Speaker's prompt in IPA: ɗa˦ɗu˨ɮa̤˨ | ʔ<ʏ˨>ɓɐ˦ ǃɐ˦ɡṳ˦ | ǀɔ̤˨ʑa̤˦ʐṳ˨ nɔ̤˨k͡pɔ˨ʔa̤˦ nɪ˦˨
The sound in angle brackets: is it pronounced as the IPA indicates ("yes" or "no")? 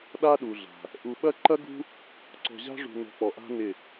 no